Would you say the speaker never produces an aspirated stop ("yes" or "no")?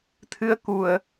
no